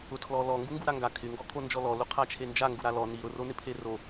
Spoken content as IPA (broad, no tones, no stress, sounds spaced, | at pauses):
ʊ tʰ l ɔ l ɔ ŋ ɡ u ŋ ɡ u ɾ a ŋ ɡ a kʰ ɪ ŋ ɡ ɔ kʰ o n d͡ʒ ɔ l ɔ l u qʰ a t͡ʃʰ e n d͡ʒ a ŋ ɡ u ɾ a l ɔ n i ɾ ʊ r o n ɪ pʰ e r o